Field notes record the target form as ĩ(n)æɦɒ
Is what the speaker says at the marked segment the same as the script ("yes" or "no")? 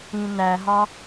yes